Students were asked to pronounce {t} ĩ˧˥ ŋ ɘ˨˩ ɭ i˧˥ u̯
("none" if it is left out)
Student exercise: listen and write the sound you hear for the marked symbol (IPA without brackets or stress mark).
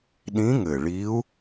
ɗ